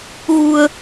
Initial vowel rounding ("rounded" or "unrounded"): rounded